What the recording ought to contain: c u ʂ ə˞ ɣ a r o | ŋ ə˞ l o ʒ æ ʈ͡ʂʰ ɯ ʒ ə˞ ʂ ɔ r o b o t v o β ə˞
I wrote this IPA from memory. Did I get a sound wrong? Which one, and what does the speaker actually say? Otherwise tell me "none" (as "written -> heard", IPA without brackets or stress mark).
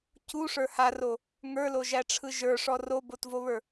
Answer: ɣ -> h